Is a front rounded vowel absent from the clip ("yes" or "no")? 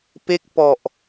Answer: yes